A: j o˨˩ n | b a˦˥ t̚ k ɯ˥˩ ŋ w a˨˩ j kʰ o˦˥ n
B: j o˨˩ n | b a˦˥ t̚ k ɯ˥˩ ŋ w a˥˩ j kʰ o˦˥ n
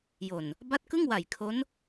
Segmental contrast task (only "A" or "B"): A